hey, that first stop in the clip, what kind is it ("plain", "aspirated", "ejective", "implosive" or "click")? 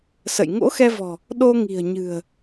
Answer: implosive